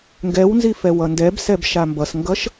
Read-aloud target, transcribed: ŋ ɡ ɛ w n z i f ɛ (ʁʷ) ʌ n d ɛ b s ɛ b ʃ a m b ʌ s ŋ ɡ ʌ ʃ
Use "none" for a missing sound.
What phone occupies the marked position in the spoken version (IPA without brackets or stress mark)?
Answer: w